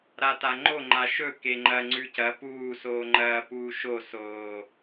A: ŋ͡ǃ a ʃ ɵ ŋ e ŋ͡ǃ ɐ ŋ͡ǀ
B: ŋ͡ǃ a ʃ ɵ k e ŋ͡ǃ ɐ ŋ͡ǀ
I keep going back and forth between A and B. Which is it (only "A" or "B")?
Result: B